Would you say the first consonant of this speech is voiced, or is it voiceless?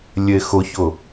voiced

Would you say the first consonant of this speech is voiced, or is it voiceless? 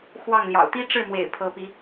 voiceless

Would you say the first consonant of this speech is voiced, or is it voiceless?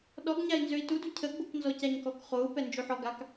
voiced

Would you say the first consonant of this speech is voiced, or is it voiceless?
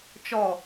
voiceless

